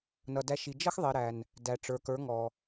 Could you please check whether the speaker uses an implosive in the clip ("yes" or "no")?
no